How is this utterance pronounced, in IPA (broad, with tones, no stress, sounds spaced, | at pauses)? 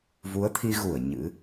v u˨˦ ə̯ t̪ʰ i˧ ɣ u˧˩ ə̯ ɲ ɨ̰˧˥